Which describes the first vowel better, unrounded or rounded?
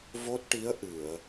rounded